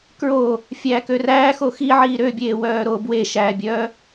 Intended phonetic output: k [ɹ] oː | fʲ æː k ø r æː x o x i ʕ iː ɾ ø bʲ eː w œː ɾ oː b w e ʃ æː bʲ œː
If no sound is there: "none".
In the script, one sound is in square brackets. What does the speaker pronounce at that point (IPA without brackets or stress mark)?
ɹ